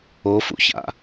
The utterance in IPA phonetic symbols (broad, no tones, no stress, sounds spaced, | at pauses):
o f ṵ ç a̰